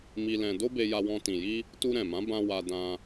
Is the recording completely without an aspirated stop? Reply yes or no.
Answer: yes